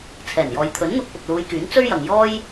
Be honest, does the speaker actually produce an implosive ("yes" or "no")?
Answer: no